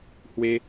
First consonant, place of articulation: glottal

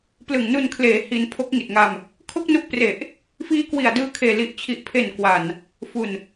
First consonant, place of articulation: labial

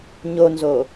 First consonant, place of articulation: palatal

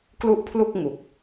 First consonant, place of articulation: velar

